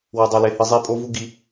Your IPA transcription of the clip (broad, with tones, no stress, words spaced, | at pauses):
wɐ˨dˤo˨le˨hɨ˨ zˤe˦pʼo˦vu˦ ɡi˦